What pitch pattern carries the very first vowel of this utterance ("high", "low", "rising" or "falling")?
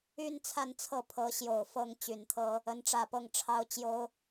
high